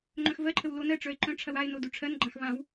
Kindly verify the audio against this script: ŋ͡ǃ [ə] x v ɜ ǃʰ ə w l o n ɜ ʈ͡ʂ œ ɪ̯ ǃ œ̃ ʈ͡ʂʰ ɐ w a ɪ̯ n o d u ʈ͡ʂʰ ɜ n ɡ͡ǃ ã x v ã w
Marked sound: incorrect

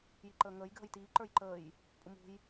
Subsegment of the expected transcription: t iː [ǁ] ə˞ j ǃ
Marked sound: incorrect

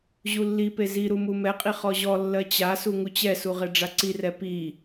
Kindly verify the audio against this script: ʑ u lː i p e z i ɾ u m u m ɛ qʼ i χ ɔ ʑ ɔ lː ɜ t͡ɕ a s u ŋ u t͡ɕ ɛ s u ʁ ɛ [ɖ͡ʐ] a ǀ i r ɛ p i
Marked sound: correct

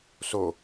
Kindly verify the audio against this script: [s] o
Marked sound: correct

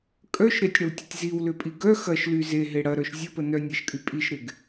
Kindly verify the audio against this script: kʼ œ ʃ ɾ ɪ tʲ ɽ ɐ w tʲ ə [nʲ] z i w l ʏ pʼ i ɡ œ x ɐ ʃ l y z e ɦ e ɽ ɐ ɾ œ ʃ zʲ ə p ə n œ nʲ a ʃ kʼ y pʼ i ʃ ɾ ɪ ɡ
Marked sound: incorrect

